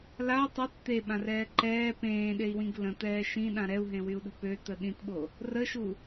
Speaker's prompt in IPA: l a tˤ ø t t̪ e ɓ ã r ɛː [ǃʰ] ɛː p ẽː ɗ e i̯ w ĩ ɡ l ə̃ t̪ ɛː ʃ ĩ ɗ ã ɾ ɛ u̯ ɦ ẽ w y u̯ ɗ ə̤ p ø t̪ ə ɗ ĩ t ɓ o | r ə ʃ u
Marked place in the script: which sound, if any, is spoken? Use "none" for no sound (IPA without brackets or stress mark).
ǃ